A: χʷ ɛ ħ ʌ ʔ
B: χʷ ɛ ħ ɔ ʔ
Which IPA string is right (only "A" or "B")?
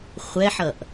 A